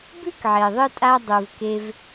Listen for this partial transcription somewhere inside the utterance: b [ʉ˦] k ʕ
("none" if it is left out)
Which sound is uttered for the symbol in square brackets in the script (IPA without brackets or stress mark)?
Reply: ʉ˦